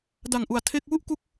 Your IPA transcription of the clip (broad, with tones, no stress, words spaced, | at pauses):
da˨˩ŋʔu˨˩a̯ tʰe˥˩k̚ wu˥˩ʔku˦˥k̚